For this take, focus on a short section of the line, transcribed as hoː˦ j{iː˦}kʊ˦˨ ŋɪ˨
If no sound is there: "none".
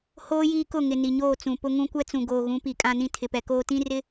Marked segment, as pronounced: iː˦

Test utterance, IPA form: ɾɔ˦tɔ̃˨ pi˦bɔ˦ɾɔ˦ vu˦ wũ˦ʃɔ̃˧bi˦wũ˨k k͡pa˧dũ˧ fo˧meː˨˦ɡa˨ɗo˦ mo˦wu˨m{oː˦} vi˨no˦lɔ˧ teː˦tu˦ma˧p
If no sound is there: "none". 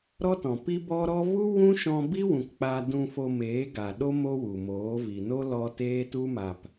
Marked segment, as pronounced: oː˨˦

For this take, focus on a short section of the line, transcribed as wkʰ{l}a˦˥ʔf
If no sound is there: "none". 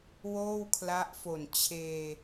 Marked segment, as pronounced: l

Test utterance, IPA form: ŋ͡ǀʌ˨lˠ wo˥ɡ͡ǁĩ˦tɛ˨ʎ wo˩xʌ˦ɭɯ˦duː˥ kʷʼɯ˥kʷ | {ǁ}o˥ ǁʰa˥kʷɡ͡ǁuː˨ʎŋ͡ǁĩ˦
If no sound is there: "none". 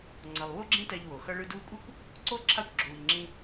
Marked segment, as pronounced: ǀ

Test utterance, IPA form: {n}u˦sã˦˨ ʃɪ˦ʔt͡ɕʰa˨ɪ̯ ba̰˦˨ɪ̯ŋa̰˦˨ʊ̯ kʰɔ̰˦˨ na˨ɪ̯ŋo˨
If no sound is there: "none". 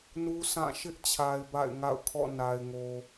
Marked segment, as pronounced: n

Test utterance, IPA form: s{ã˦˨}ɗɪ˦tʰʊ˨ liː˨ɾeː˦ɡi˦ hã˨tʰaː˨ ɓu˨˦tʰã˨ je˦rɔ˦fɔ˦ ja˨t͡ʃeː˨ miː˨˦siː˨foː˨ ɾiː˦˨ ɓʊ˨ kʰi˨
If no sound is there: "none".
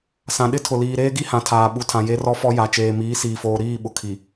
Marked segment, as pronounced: ã˨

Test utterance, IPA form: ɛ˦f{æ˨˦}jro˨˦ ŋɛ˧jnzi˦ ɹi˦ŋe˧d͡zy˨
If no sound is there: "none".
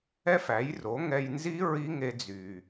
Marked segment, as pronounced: æ˨˦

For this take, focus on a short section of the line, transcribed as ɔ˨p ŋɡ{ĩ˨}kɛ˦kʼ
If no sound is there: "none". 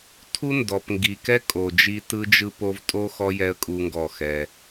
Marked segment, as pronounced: i˨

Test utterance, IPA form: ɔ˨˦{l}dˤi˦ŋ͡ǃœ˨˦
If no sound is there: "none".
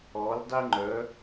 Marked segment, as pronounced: l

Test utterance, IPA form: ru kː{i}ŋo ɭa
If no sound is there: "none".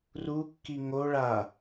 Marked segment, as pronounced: i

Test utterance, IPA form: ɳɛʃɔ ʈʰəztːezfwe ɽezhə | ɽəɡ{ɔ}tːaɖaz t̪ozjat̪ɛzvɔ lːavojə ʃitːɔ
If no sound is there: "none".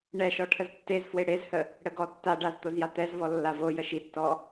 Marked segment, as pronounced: ɔ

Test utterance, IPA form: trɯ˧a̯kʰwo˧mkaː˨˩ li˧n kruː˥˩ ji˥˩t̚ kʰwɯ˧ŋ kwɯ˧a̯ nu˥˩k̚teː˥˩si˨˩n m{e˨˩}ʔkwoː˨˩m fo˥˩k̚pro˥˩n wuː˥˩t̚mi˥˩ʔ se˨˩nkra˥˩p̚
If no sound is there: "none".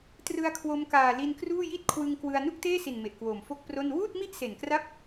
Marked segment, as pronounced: e˨˩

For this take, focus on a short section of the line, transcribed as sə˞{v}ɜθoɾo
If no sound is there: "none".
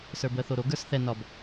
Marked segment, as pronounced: b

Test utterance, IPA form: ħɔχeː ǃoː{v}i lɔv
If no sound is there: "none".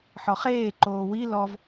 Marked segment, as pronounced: w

